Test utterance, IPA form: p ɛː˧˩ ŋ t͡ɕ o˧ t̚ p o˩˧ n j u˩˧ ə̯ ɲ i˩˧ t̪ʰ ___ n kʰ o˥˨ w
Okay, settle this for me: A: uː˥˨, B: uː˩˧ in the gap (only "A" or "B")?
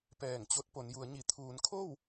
B